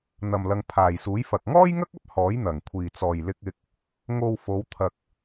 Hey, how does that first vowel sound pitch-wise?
low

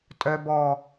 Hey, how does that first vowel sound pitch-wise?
low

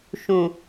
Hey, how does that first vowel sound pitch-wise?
low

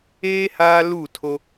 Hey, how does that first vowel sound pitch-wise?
high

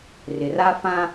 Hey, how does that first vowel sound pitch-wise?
low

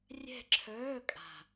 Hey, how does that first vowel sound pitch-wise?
falling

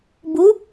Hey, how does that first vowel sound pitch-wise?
rising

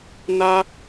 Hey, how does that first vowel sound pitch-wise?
high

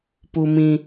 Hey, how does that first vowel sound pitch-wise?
high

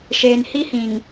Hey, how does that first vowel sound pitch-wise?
low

